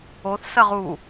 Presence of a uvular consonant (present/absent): present